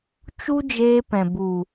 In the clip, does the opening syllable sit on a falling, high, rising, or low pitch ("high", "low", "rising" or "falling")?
high